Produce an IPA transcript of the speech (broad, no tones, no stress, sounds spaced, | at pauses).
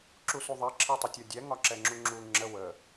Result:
ǁ u s u ðˤ i ǁʰ i tˤ ə tʲ ɔ dʲ ɛ ŋ ɒ ǁ ɛ ŋ͡ǁ u ŋ͡ǁ u ŋ͡ǁ ə w ə